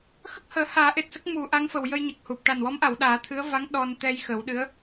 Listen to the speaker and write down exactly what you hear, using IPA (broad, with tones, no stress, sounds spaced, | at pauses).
x ə˦˥ k̚ h əː˨˩˦ h aː˨˩˦ ʔ e˨˩ t̚ s ə˦˥ k̚ m u˨˩˦ ʔ a˧˥ ŋ f ə˨˩ w j ə˧ j ɲ ə˨˩ k̚ h u˨˩ p̚ ʈ a˨˩ n w ɔ˧˥ m ʔ a˨˩˨ w ɗ aː˨˩˦ t̪ʰ ɨ˧˥ ə̯ v a˧˥ ŋ ɗ ɔ˧ n t̪ ɛ˧ j x ə˨˩˦ w ɗ ɨ˧˥ ə̯